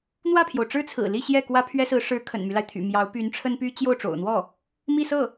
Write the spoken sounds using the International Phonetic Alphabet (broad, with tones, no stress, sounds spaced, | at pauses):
n̪ w ä˥˩ pʰ j o˩ ʊ̯ ʈ͡ʂ ɻ̩˥ t͡sʰ ɹ̩˨˩ l i˥˧ ɕ j ɛ˥˩ k w ä˥ pʰ ɥ ɛ˥ s ɹ̩˧˥ ʂ ɻ̩˧˥ kʰ ə̰˨˩ n m y˦ l a˩ ɪ̯ t̪ʰ y̰˨˩ m j ɑ˧˥ ʊ̯ p y˧˥ n ʈ͡ʂʰ ə˥ n p y˥ t͡ɕ j o˥˩ ʊ̯ ʈ͡ʂ o̰˨˩ ʊ̯ n̪ w ɔ˥˩ | m i˥˧ s ɤ˥˩